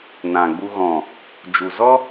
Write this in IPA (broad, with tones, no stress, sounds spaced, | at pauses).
n ã˨ ɡ͡b u˧ ɣ ɔ̃˨ | d͡ʒ u˨ z ɔ˦